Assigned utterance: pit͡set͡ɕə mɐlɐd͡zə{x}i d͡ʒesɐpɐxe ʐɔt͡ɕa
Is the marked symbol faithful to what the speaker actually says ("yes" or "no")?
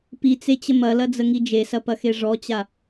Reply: no